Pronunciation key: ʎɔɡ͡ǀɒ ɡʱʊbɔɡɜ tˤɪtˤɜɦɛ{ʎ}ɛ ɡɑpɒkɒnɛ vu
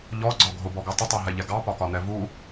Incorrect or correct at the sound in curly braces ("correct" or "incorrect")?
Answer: correct